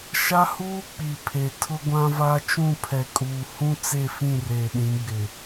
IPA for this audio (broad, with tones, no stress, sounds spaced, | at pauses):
ʃ a˦ h uː˦ k͡p i˨ pʰ e˨ tʰ ʊ˦ ɡʷ ã˦ v a˦ t͡ʃ ũ˦˨ pʰ ɛ˨ kʼ uː˨ h ũ˦ t͡s e˦˨ f ĩ˦˨ r eː˨ ɗ ĩ˨˦ ɡ͡b ɪ˨